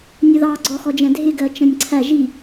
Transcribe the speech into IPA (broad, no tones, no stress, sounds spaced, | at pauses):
nʲ ʌ ð ɑ ɡ͡ǀ ɔ x ɔ d͡ʒ ɛ̃ dʱ ɪ ɡ ɜ t͡ʃ ə̃ nʲ ǀʰ æ ʒ i